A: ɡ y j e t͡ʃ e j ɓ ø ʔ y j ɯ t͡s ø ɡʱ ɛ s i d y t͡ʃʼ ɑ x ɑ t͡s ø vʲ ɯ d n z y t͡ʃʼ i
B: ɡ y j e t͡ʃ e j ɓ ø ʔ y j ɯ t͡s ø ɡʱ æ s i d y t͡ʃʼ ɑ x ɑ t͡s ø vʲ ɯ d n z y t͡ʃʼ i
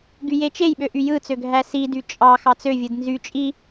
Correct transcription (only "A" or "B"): B